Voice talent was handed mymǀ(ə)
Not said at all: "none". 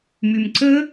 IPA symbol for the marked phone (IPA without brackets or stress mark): ə